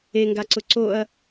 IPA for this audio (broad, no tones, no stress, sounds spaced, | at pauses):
e ŋ ɡ a ǀ ʊ ǀ o ɐ̯